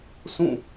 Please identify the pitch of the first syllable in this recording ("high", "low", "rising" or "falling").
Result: falling